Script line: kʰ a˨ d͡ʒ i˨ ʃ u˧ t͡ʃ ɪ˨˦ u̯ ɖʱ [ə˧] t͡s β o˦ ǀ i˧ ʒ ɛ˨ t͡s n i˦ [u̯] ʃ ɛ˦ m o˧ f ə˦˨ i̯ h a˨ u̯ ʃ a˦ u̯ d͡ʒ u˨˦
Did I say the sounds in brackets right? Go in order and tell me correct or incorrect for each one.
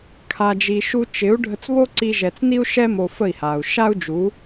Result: correct, correct

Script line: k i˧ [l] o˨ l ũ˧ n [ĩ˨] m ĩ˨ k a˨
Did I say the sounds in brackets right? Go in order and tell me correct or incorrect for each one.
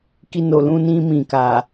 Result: incorrect: n, incorrect: ĩ˧

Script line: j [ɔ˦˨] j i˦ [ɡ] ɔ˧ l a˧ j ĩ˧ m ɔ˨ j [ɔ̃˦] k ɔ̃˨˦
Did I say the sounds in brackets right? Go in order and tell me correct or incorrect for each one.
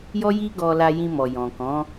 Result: incorrect: ɔ˦, correct, incorrect: ɔ̃˨

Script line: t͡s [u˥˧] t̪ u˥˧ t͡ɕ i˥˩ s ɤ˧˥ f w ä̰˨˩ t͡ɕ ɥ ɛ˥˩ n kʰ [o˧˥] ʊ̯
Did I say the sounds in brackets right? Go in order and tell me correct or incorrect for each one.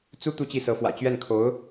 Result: incorrect: u˥, correct

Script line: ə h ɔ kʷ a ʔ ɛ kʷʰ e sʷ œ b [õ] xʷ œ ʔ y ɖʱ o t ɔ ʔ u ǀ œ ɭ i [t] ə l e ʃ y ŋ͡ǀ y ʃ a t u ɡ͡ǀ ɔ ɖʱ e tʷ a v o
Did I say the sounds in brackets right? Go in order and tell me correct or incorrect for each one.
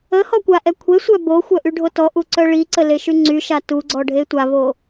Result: incorrect: o, incorrect: ǀ

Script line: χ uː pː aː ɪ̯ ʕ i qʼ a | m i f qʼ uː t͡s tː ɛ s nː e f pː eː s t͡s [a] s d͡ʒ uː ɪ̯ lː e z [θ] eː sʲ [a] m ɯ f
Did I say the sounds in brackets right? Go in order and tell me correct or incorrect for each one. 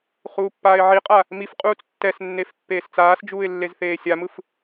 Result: incorrect: aː, correct, correct

